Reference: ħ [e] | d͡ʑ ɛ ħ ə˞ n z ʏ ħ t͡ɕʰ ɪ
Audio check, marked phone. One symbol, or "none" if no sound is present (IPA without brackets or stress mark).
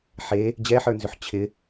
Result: e